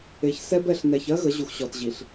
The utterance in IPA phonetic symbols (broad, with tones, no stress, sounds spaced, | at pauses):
e˨ ç s ɛ˦ b ɛ˨ ɬ n ɛ˨ ç ɜ˦ ɣ ə˨˦ ʑ u˨ x ɕ ɔ˨ t ʑ i˨ ɬ